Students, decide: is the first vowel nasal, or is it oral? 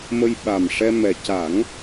oral